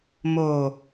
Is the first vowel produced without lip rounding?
no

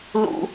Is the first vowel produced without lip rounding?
no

